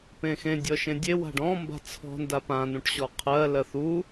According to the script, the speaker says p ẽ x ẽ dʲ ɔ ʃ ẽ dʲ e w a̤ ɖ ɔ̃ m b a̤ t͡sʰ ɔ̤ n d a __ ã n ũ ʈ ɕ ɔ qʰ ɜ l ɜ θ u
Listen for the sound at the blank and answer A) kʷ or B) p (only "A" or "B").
B